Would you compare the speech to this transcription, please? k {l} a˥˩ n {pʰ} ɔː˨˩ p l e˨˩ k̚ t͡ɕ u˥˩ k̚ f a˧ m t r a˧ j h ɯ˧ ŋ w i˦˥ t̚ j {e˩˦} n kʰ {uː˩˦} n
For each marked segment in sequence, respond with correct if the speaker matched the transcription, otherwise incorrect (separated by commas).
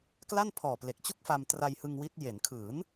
correct, correct, correct, incorrect